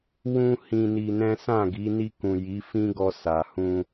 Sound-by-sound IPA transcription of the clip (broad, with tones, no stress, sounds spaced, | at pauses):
w ũ˦ h ĩ˧ n i˧ n ɛ̃˦ s ã˦˨ ɡ i˨˦ n i˧ k ũ˨ j i˨˦ f ĩ˦ ɡ ɔ˧ s a˨ h ũ˧